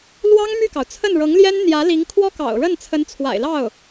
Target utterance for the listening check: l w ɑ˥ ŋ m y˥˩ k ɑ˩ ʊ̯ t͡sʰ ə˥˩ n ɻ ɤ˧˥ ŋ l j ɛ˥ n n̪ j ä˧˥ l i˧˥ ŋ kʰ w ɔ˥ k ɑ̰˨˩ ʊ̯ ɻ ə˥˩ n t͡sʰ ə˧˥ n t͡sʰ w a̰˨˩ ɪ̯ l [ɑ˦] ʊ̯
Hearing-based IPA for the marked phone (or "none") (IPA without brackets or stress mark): ɑ˥˩